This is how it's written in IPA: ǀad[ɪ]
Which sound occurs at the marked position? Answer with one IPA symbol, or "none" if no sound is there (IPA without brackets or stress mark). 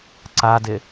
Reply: ɪ